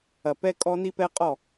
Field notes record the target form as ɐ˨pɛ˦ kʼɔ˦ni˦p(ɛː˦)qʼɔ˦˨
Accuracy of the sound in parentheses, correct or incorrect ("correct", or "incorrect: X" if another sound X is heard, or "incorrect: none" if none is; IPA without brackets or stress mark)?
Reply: incorrect: ɛ˦